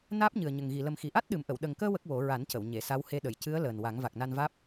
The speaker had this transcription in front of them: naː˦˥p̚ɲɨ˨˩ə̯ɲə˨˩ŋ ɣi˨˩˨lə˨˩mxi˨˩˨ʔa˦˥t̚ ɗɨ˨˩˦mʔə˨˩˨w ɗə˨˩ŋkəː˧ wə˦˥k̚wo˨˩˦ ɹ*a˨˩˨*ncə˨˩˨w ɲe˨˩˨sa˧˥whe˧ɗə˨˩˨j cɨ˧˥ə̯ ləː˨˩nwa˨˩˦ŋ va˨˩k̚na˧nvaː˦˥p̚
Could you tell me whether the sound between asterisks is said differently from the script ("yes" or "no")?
yes